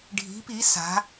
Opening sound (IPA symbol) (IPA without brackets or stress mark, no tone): ɖʱ